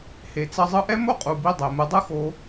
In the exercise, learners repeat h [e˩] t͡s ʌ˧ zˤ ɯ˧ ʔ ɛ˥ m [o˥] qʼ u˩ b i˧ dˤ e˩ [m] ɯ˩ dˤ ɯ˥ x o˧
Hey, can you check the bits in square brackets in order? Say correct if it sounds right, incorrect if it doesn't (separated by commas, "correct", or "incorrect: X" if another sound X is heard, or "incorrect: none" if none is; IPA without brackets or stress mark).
correct, correct, correct